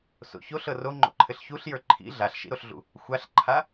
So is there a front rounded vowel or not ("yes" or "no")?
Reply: no